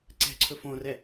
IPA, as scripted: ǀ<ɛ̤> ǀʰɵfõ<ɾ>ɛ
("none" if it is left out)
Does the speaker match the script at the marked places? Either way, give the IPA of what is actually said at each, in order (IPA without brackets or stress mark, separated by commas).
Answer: ɛ̤, r